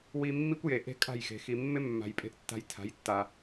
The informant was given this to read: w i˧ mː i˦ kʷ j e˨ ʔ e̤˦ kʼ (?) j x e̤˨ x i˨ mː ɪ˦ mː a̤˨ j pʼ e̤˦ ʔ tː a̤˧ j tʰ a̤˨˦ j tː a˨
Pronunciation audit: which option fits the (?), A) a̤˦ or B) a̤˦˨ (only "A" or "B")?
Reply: B